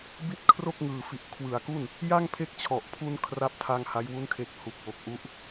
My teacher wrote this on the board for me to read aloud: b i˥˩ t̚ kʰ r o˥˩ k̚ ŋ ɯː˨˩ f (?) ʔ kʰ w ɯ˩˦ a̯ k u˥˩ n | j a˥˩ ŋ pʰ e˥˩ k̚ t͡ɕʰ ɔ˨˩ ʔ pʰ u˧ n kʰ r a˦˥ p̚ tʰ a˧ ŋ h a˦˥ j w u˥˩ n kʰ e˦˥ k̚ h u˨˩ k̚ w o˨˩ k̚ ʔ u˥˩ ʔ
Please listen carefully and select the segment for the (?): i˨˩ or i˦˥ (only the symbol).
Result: i˨˩